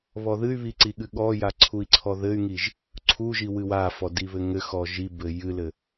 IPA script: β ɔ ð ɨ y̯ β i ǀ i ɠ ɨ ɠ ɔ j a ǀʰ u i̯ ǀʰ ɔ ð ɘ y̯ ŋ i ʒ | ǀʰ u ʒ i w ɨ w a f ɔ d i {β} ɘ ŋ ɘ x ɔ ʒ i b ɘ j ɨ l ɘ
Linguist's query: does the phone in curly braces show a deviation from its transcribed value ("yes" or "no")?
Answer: no